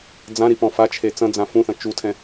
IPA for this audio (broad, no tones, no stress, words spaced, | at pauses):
d͡zãɾipɔ̃ fat͡ʃʰe t͡sɐ̃d͡zã fũθɐ̃ t͡ʃutʰɛ̃